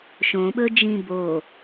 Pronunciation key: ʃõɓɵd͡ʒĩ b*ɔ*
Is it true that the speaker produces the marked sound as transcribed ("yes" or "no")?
no